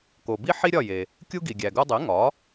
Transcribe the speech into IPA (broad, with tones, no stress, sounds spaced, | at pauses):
k o˩ b i˥ ħ i˥ ɾʲ ɒ˥˩ j e˩ | kʲ u˥ ɡ i˩ ɡʲ æ˩ ɡ u˧ dˤ e˩˥ ŋ ɒ˩˥